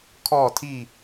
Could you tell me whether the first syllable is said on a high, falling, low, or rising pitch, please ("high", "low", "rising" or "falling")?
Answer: falling